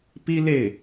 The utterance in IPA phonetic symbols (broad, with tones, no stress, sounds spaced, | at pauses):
p i˥ l e˥˩ ɪ̯